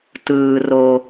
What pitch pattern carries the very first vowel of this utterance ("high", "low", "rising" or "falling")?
low